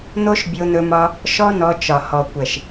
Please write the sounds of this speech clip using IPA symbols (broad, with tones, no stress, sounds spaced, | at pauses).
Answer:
n̪ o˦ ʃ bʲ o˧ n̪ ɵ˧ m ɒ˧ | ʃ ɔ˦ n ɔ˧ t͡ʃ ɒ˨ h ɔ˨ kʷ ɛ˨ ʃ